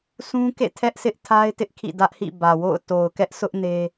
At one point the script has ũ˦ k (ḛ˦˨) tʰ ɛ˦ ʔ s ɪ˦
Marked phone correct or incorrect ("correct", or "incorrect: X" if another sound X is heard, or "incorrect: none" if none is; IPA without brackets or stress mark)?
correct